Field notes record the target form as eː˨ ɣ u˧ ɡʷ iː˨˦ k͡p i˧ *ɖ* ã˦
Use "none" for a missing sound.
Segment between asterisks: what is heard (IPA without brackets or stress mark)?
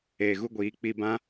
b